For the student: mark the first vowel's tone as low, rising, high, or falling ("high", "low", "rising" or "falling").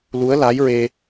rising